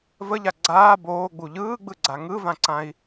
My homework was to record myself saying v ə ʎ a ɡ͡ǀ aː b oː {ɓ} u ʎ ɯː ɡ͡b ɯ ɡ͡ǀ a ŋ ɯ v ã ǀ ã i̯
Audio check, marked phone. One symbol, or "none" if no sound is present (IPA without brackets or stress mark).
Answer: ɡ͡b